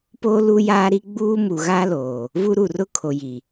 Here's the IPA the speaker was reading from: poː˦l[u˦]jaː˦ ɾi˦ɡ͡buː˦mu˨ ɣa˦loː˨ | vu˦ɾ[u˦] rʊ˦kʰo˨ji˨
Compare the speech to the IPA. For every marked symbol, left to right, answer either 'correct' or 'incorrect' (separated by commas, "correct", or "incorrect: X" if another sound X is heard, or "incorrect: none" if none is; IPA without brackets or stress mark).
correct, incorrect: u˨